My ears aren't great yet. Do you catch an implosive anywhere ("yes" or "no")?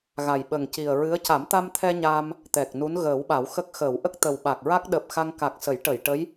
yes